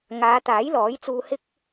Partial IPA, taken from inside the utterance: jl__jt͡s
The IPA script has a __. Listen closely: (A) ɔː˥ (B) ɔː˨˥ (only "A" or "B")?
B